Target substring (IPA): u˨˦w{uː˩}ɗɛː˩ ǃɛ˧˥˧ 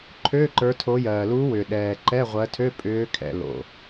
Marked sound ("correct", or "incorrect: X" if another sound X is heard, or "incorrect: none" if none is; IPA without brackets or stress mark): incorrect: ʏː˩